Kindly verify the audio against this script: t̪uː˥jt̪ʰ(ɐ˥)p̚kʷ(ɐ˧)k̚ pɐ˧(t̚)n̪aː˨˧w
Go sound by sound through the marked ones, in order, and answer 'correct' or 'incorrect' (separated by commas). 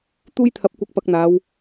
incorrect, correct, incorrect